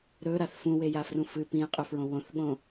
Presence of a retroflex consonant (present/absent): absent